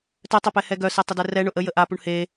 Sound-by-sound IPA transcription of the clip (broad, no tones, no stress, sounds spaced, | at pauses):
t œ tˤ œ p ɛ h ɛ ɡ œ s e tˤ ə d ɛ r ɛ ɳ ʊ ʔ ə j ə ʔ a p u ɳ h e